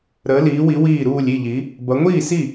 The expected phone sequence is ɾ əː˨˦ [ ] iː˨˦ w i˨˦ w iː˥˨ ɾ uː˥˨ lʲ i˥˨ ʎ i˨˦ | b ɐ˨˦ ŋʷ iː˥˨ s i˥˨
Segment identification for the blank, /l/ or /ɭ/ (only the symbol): l